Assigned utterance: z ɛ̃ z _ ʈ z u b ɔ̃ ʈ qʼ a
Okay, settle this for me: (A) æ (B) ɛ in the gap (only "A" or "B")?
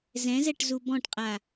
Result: B